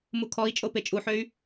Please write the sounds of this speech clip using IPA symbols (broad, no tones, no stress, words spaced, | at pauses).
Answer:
mukʰɔi̯t͡ʃʼo pet͡ʃʼuħøy̯